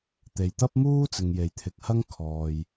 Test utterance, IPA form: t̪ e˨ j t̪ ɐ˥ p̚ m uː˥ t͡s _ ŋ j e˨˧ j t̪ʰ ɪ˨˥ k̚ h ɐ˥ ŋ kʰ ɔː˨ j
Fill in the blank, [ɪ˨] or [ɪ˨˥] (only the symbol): ɪ˨